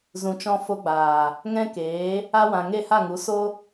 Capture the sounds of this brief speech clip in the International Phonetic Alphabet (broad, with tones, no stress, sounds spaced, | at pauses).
z ũ˨ t͡ʃ ɔ̃˧ f o˧ ɡ͡b aː˨ | ŋ ɛ̃˦ k eː˨˦ | a˧ w ã˨ ŋ e˦˨ h a˦˨ ŋ u˨˦ s o˦